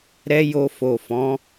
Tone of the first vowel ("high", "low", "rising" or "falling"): high